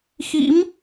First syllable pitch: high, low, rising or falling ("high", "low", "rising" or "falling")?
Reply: rising